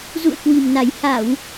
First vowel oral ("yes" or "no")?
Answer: yes